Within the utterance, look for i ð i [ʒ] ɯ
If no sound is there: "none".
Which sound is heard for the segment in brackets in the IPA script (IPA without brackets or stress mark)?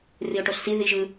ʒ